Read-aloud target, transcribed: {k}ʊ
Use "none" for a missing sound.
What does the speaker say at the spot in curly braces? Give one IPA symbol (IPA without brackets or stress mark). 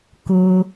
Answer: k